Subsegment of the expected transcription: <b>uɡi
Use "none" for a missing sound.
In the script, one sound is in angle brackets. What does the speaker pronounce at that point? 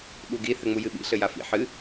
ɓ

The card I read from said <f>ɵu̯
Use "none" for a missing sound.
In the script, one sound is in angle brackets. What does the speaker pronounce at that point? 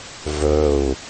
v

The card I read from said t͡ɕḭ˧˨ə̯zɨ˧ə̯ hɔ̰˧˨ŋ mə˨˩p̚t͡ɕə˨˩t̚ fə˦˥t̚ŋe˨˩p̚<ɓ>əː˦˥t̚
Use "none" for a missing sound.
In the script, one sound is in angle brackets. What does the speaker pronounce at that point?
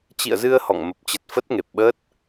ɓ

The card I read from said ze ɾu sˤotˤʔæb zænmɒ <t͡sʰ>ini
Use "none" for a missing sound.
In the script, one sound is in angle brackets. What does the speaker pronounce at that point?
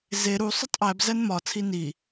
t͡sʰ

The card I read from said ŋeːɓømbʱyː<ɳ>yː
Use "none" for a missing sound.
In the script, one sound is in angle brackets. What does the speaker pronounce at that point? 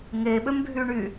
ɳ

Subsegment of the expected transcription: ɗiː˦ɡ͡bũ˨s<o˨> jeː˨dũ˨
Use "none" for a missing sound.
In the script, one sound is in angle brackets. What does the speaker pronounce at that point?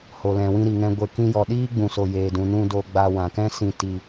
o˨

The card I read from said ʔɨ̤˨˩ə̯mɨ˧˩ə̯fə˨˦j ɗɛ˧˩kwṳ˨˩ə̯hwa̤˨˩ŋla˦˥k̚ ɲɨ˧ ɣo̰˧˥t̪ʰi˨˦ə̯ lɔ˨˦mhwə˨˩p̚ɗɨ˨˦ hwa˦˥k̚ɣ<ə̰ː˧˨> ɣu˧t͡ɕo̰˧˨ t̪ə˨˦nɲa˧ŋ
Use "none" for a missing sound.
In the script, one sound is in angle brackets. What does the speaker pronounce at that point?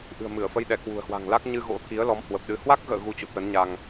ə̰ː˧˨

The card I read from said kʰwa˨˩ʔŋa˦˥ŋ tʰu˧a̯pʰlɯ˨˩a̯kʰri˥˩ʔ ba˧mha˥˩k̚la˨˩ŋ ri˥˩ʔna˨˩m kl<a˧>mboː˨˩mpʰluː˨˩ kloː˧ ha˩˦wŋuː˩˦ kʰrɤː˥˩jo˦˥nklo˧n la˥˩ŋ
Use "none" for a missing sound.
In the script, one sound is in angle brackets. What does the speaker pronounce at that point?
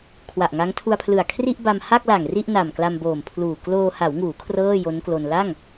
a˧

